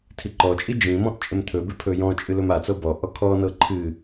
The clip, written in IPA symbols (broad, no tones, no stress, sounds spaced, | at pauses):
tʰ i ǃ ɔ t͡ʃʼ i d͡ʒ ĩ m ɔ̃ ʔ t͡ʃʼ ɪ m t̪ʰ ɵ b ɪ pʰ ɵ j ɔ̃ t͡ʃʼ ɨ l ɵ m a t͡s ɤ b ɔ ʔ ɔ kʰ ɔ n ɤ ǃʰ ɨ